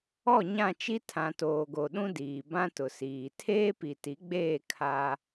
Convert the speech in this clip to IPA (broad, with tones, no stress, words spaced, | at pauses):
ɔ˦˨ɲã˦˨t͡ʃi˦ tʰã˨toː˨ɡo˨ɗũ˦ diː˨bã˦tʊ˨siː˨ tʰeː˦pi˨ti˨˦ɡ͡beː˦˨ kʰa˦